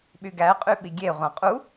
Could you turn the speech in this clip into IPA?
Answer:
ɓ y ɡ æ qʼ y ɓ i ɡʲ e ʁʷ ɑ̃ qʼ u

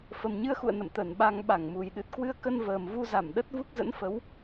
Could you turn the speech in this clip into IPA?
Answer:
f ə˨˩ m ɲ ɨ˧ ə̯ x ṵ˧˨ ə̯ n ə̰˧˨ m t̪ ə˧˩ n ɓ a˧ ŋ ɓ a˧˩ ŋ m u˨˩ j ɗ ɨ˨˩ t̚ k w ɨ˧ ə̯ k ə˧ n v əː˨˩ m v u˧ z a˧˩ m ɗ ə˦˥ t̚ v u˦˥ k̚ z ə̰˧˥ n f ə˨˦ w

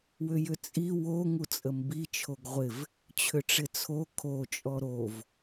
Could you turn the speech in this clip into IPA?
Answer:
w ʏ j ʏ t͡sʼ i w o ŋ u t͡sʼ ə m b i t͡ʃʰ o ɡ ʁʷ ɪ v | t͡ɕʰ ʏ ʈ͡ʂ ɪ t͡sʰ o kʰ o t͡ʃʼ ɔ ɾ o v

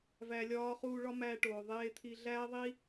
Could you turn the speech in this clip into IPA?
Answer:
v æ˧ lʲ ɒː˦ χ uː˧ ɭ ɒ˦ m æː˧ ʈ oː˨ ðˤ eː˦ t̪ʰ i˦ ɮ æː˦ ðˤ i˦

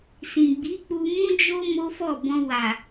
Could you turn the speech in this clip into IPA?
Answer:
s ĩ˨ ɡ͡b i˨˦ k͡p u˧ m ũ˦ d͡ʒ o˦ m o˦ f ɔ˦˨ b ɔ̃˧ w a˨

